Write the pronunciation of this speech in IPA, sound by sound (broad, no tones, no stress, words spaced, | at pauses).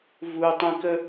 vutˤĩkə